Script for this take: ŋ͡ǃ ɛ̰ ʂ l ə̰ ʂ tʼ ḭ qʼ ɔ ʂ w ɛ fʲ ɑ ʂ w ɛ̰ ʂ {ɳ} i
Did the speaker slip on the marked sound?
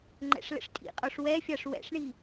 no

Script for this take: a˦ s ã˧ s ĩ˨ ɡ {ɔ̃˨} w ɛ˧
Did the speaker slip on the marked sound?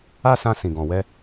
no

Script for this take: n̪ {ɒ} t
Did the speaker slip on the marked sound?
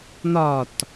no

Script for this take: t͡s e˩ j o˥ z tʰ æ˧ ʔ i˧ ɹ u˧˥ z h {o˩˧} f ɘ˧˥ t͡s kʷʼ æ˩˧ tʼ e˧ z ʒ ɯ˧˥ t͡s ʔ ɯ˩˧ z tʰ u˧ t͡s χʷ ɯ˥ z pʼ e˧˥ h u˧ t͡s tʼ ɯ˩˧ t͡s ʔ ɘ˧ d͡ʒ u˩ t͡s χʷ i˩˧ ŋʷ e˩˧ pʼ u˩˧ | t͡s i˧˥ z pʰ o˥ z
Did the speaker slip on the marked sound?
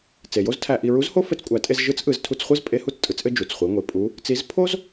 yes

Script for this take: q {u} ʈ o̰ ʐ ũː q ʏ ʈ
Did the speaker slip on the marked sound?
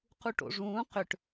no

